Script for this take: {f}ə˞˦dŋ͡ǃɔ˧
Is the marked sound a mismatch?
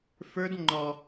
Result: no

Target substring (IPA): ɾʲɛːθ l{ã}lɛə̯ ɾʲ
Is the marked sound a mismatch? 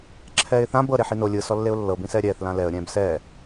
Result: no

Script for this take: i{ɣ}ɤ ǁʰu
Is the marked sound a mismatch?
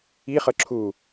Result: yes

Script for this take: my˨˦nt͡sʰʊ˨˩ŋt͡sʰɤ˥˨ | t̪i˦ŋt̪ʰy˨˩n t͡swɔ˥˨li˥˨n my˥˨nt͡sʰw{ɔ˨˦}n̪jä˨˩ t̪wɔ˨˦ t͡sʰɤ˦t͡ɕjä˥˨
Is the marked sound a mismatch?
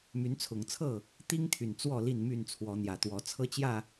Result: no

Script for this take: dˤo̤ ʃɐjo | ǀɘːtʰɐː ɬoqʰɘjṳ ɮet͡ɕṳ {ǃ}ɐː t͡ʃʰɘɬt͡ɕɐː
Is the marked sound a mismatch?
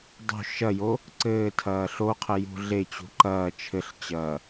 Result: no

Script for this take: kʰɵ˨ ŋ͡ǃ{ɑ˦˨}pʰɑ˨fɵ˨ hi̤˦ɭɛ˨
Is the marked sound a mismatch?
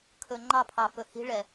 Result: no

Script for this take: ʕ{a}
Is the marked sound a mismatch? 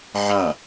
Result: no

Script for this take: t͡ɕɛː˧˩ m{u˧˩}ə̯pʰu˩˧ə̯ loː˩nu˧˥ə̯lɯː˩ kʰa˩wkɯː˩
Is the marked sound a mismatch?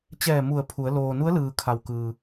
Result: no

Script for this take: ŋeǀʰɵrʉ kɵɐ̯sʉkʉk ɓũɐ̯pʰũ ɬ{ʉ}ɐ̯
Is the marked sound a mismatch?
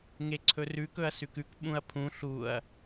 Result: yes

